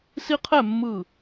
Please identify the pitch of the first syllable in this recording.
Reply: high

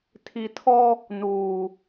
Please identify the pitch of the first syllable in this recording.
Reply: low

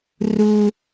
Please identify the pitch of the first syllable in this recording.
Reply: high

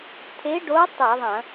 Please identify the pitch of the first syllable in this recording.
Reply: rising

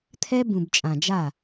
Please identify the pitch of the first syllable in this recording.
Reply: high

